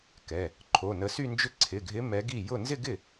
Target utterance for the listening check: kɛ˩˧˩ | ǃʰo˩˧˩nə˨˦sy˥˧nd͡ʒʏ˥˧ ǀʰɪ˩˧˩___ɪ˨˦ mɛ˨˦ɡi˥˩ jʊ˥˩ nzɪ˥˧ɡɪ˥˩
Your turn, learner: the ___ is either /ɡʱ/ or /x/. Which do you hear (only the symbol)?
ɡʱ